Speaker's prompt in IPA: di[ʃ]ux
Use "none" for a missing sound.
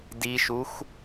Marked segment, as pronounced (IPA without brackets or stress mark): ʃ